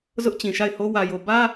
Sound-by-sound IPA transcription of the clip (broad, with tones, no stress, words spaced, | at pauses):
zʊ˦ʔt͡ɕĩ˨ʃa˦˨ɪ̯ho˦ wä˨jo˨ bä˦